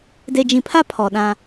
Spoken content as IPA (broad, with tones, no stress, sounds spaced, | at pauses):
d e˨ d͡ʒ ĩ˨ pʰ a˦ pʰ ɔ˨ ɗ ã˦